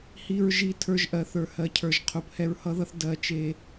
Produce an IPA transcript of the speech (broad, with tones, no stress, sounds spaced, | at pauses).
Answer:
h i˨ ɹ ʒ i˨ tʰ ə˞˧ ʒ ʔ ɜ˨ θ ə˞˨ h ɜ˨ cʰ ə˞˨ ʒ qʰ u˨ p h ɛ˧ ɹ h ʌ˦ ð ʌ˦ θ d ɜ˨ t͡ʃ e˨